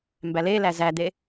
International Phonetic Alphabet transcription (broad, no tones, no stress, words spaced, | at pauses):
mbælelæ zæd̪e